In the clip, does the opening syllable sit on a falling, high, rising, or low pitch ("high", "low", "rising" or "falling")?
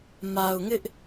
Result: low